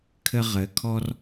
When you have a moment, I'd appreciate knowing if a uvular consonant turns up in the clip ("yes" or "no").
yes